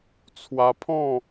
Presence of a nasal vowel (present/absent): present